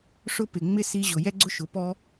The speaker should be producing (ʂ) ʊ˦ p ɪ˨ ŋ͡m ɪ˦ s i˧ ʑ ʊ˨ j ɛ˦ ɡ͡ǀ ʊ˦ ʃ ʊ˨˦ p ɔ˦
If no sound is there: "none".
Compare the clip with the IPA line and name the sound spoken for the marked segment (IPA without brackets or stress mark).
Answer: ʂ